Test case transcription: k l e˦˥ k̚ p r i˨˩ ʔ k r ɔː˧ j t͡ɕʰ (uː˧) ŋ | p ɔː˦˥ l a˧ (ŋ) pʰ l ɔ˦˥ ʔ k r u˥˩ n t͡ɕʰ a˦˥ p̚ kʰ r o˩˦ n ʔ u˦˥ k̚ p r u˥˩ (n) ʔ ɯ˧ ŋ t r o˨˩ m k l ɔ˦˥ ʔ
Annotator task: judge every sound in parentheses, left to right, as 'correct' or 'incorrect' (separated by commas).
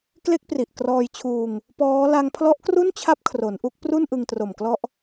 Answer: correct, correct, correct